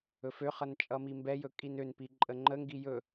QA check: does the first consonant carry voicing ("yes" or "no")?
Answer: no